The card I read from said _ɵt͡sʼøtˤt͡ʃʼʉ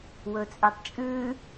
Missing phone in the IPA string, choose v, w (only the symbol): w